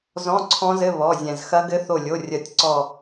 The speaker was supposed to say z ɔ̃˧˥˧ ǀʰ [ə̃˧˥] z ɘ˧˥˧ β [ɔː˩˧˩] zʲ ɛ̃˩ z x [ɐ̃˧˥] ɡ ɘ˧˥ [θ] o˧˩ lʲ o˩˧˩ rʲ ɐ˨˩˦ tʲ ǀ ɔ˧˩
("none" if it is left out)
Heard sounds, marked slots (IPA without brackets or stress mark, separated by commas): ɔ̃˧˥, ɔ˩˧˩, ɐ˧˥, θ